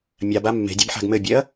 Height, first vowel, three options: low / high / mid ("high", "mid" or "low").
low